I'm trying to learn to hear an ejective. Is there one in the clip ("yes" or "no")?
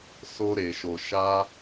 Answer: no